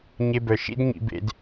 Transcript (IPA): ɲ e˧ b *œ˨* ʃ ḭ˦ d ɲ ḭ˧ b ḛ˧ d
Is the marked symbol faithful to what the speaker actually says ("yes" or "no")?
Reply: yes